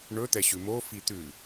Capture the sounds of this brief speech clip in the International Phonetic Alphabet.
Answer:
ɳ ɵ t̪ ɛ ɕ ʉ m o f i t̪ ʉ

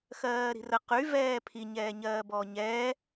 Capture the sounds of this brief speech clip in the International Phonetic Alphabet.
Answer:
x ɜː ɾ i̤ r ə q y v ɛː pʰ i ɲ ɛː ɲ ɜː b ɔː ɲ ɛː

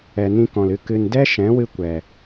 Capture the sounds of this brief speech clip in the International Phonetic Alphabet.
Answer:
ɛ˨ n ĩ˦ k ɔ̃˨ l ɨ˧ k ɨ˨ n d ɛ˦ ʃ ɛ̃˨˦ w ɨ˧ kʷ ɛ˨

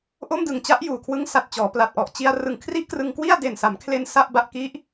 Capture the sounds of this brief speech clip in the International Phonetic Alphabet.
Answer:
ʔ o˥˩ m d ɯ˨˩ ŋ t͡ɕ a˦˥ ʔ j uː˨˩ kʰ w ɯ˦˥ ŋ s a˨˩ t̚ t͡ɕ ɔː˩˦ p l a˨˩ t̚ ʔ ɔ˨˩ ʔ t͡ɕ i˧ a̯ r ɯ˨˩ ŋ kʰ r i˥˩ ʔ k r ɯ˧ ŋ k w i˥˩ a̯ d e˨˩ n s a˩˦ m kʰ l e˧ n s a˥˩ ʔ b a˦˥ ʔ k i˦˥ ʔ

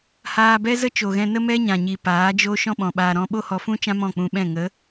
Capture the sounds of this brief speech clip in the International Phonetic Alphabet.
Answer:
h aː˧ b ɛ˦ z ə˦ t͡ʃ o˨ ɣ ɛ̃˧ n ə˦ m ɛ˦ ɲ ã˨ ɲ i˨ p aː˨˦ d͡ʒ o˦ ʃ ɔ̃˦ ɓ ɔ̃˨ ɓ aː˧ ɾ ɔ̃˧ ɓ o˦ h ɔ˧ f ũ˦ t͡ʃ ã˦ m ɔ̃˦˨ k͡p ũ˧ ɓ ɛ̃˦˨ ŋ ə˨˦

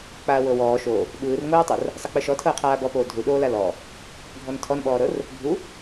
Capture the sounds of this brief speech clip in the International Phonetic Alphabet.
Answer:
k͡p aː w ɤ w ɔː ʃ o | ɓ ɯː r ŋ oː tˤ ɤ r | sˤ ɤ k͡p ɯ ʃ ɔ tʰ ɤː qʰ aː b ɔ p oː dʱ u ɗ oː l a l ɔ | ɡʱ ɔ n tʰ ɔ n ɓ ɔː ɾ ɤ r | bʱ u

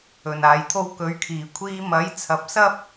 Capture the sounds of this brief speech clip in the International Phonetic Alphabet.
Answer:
ɵ˨˩ n aː˨ j t̪ʰ o˥ w k ɵ˨˧ ɥ kʰ iː˨˩ kʷʰ iː˥ m ɐ˨˥ j t͡sʰ ɐ˨˥ p̚ s ɐ˥ p̚

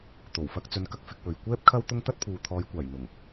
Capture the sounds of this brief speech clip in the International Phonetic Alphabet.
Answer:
t̪ o˨˩ w f ɐ˧ k̚ t͡s ɵ˨˧ n k ɐ˧ k̚ f ɪ˧ k̚ w ɵ˨ ɥ kʷ ɛː˥ p̚ kʰ ɐ˥ w t̪ ʊ˥ ŋ t̪ ɐ˥ t̚ pʰ uː˨ t̪ʰ ɔː˨˧ j kʷ aː˨˩ j n̪ ʊ˨˩ ŋ

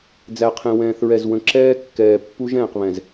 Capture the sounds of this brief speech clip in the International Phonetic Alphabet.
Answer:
d͡z æ˨ qʰ ẽ˨ w ɛ̃ː˨ θ ɹ ɛ˨ z w ə̃˨ ǁ ɛː˦ kː ɛː˨ pː u˦ ʒ ɛ̃ː˨ q β ɛ̃˨ z

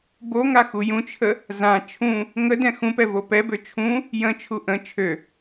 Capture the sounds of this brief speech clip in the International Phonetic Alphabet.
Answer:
b o ŋ a x u j ũ t͡ʃʰ ə | z ã t͡ʃʰ ũ | ŋ ə d ɛ̃ x ũ p ɛ v o p ɛ b ø t͡ʃʰ ũ | j ə̃ t͡ʃʰ u ʔ ə̃ t͡ʃʰ ø

